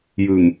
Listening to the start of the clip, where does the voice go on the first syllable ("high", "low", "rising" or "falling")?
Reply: low